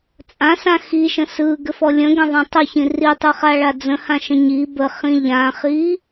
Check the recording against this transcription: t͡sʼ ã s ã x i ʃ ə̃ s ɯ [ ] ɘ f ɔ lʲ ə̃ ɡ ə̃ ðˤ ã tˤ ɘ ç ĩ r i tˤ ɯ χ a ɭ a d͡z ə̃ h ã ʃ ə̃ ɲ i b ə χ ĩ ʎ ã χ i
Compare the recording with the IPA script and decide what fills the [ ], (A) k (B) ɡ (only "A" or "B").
B